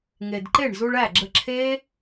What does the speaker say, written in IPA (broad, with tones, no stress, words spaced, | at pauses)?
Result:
ŋe˨d ǃe˦˨ɳzu˧ɭæ˦˨ɡ͡ǁə˧ ǁʰe˦